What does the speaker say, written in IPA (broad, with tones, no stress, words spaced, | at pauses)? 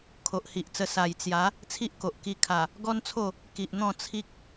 kʰo˨ʔhi˨ʔt͡sə˧ sa˨˩jt͡sja˨˦ | t͡sʰi˦ʔko˨ʔ ki˧kʰa˨˩ | ɡɔ˦nt͡sʰo˥˧ | ki˨ʔn̪ɔ̃˥˧ t͡sʰi˦k̚